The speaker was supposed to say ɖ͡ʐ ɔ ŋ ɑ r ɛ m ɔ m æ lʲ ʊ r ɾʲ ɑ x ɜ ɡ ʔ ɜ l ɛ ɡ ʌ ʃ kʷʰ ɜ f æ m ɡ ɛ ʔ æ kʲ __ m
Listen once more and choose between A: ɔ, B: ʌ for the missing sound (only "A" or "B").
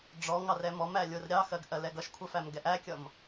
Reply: B